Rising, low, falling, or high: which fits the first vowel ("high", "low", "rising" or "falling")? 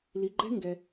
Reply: low